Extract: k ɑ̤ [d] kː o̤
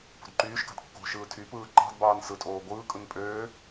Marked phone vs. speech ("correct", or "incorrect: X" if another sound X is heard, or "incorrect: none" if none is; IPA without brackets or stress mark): correct